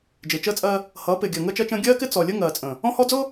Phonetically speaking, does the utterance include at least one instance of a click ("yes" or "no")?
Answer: no